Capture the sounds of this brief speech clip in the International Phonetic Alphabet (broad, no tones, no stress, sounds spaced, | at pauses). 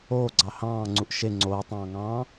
oː ɡ͡ǀ ɑ h ɑ̃ː ŋ͡ǀ u ʔ ʃ e ŋ͡ǀ oː tˤ ɑ̃ː ŋ ɑ̃ː